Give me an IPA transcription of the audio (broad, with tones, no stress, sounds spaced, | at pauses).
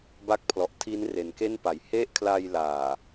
b a˦˥ k̚ pʰ l ɔ˨˩ ʔ tʰ i˦˥ n r e˩˦ n k e˥˩ n p a˩˦ j h e˥˩ ʔ kʰ l a˧ j l aː˨˩